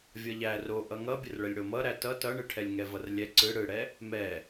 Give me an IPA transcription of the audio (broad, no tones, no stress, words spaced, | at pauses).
vʲʌʎæ roʔʌ ŋʌbʲərɭəlʲ ɽomʌɾæ tʌ tʌɳɯʈʰɛlʲŋɛ vʌrlʲɛ ǀɯ ɽɯɽɛ | mɛ